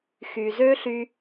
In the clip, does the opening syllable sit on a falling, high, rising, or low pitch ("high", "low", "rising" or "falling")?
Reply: low